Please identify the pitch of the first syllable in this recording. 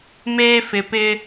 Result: high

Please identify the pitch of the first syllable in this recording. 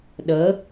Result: rising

